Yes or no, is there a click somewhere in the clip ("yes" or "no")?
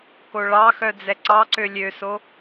yes